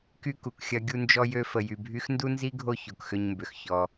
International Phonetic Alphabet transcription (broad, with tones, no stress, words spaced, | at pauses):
ky˥ku˩kxʲɐ˦ ɡʲu˦nd͡ʒɔ˦jø˦ fə˨jy˨bʱy˥x ndu˥nzi˥ɡʱo˦ ço˩kxʏ˦ɲmbʏ˩xçɔ˨